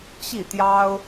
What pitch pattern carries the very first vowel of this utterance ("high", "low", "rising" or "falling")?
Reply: falling